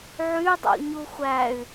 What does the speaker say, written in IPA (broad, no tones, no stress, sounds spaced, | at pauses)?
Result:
ʕ y dˤ ṵ ɲ u xʷ æ y̯